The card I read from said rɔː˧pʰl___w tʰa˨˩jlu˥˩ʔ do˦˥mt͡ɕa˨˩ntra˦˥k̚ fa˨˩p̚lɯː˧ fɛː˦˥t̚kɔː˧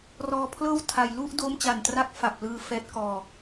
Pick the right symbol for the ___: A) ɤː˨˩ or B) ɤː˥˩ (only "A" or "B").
B